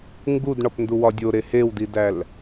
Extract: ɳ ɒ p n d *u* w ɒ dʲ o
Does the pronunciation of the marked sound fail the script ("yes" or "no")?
no